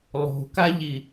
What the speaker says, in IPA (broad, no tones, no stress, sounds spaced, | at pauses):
lˠ o̤ k a ʎ i